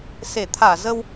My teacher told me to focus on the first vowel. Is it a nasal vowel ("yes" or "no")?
no